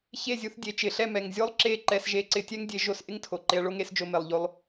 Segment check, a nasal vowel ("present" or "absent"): absent